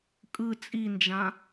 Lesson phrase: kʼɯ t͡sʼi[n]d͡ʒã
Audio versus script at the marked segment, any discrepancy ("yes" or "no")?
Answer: no